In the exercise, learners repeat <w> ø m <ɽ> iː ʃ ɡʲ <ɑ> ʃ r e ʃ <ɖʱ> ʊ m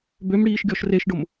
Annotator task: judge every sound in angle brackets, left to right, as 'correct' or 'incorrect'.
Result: incorrect, correct, incorrect, incorrect

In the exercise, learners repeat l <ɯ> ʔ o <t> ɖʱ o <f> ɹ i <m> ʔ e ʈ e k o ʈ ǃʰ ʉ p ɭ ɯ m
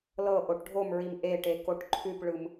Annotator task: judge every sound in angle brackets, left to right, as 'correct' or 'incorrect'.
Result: incorrect, incorrect, incorrect, correct

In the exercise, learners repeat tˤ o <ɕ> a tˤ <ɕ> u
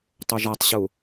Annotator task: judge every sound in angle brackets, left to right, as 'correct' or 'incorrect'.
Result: incorrect, correct

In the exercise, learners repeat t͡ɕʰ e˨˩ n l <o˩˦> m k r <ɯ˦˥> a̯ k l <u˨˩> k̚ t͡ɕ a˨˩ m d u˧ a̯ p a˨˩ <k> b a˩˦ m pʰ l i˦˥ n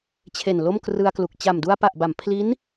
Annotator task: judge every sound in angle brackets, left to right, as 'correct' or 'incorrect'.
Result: incorrect, incorrect, correct, incorrect

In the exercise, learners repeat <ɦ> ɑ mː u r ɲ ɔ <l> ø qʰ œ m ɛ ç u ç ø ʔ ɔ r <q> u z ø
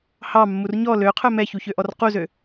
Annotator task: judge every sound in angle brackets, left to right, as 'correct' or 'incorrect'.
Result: incorrect, correct, correct

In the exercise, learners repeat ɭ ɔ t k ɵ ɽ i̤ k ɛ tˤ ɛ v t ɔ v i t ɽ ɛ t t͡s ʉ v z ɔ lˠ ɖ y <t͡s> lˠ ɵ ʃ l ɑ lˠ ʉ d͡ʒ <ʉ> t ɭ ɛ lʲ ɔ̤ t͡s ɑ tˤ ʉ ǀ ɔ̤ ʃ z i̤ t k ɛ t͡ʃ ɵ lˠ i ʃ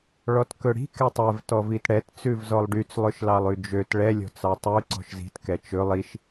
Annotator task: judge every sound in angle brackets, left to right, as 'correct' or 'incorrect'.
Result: correct, incorrect

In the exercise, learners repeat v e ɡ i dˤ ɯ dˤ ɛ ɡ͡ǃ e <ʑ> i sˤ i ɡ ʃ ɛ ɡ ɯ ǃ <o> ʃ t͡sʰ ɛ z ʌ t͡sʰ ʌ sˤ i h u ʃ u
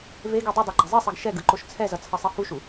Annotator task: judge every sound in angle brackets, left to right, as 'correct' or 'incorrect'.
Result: incorrect, correct

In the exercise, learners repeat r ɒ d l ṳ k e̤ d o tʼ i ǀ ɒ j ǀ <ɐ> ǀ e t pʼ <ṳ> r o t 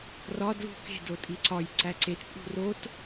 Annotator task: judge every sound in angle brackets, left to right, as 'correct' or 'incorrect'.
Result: incorrect, correct

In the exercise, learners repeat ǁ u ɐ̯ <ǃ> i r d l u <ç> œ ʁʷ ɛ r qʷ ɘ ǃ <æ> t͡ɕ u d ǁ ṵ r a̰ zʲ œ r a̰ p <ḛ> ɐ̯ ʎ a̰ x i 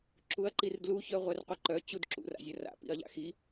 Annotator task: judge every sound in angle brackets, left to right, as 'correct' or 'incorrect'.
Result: correct, correct, incorrect, incorrect

